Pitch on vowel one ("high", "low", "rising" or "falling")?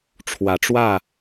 rising